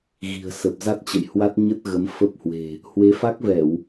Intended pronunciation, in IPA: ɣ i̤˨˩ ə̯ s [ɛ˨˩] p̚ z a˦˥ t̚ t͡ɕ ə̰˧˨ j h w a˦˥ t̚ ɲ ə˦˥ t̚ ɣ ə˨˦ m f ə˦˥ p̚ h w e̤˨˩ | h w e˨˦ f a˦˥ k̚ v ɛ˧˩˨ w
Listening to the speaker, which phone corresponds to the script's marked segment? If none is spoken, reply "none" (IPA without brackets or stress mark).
ə˨˩